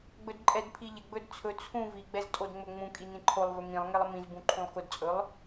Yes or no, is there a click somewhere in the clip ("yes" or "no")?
yes